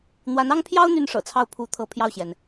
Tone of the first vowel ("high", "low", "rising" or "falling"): rising